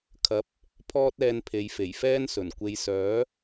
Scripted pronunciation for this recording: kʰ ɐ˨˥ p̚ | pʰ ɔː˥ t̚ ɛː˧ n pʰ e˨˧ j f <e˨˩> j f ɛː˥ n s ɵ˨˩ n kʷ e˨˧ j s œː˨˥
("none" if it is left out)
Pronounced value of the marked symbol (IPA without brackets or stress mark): e˨˩